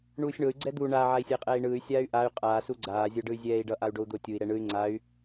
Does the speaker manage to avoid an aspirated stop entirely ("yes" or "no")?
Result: yes